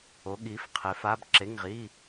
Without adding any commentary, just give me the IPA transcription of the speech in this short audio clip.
o˨˥ ɠ i˨˥ f qʰ e˨˥ f a˧˥˧ b ǁ e˧˥˧ ŋ ʁ i˧˥˧

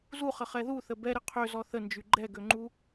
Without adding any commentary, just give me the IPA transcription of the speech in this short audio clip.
z u χ ə χ ɛ ð u θ ə b ɛ ɾ ɪ qʰ ø z ɔ θ ə n d͡ʒ y ɡ͡ǃ ɛ ɡ ø ŋ͡ǃ u

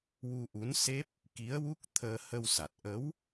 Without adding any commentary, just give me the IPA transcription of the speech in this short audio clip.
w u˧ ʔ u˧˥ n s e˦˥ p̚ | k i˧˥ ə̯ w u˦˥ k̚ t̪ʰ əː˧ h ə˧ w s a˨˩ t̚ ʔ ə˧˥ w

